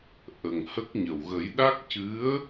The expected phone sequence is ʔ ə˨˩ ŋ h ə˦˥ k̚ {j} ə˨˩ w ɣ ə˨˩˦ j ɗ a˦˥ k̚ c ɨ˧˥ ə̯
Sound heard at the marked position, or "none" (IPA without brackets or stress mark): ɲ